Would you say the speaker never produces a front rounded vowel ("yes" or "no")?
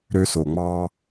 no